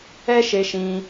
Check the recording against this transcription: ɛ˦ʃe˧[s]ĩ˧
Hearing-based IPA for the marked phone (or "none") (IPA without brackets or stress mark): ʃ